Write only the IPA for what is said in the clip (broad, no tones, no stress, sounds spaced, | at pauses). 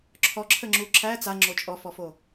ǁʰ ɔ ǁʰ ə ŋ͡ǁ u ǁʰ æ t͡s a ŋ͡ǁ o t͡ʃʼ ɔ f ɔ f o